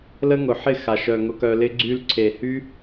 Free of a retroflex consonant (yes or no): yes